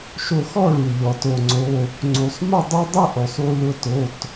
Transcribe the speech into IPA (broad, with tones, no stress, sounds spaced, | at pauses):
ʃ o˧ x ɔ˥˧ ɭ u˩ ʎ ɔ˩ t o˩ ŋ͡ǀ o˩˧˩ | ŋ͡ǀ u˩ sˤ m ʊ˥˧ dˤ u˥ dˤ ʊ˥˧ ʔ o˩ sˤ u˧ l ʊ˧ t o˩˧˩ t